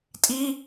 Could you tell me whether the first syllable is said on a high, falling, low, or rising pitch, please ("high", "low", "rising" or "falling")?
high